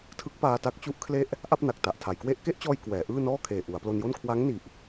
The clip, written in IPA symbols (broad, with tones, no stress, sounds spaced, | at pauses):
tʰ ɯ˦˥ k̚ p aː˧ t a˦˥ k̚ t͡ɕ u˦˥ ʔ kʰ l e˥˩ ʔ | ʔ a˥˩ p̚ n a˨˩ k̚ t a˨˩ ʔ tʰ a˩˦ j k w e˥˩ ʔ k e˥˩ ʔ t͡ɕ ɔː˧ j k w ɛː˩˦ ʔ ɯː˥˩ n ɔː˥˩ kʰ eː˨˩ ʔ u˩˦ a̯ p l o˧ n j o˥˩ n kʰ w a˦˥ ŋ n i˨˩ ʔ